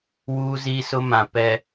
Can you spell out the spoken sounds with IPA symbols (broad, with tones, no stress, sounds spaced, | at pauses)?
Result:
w uː˦ z i˦ s ʊ˦ m ã˨ p ɛ˨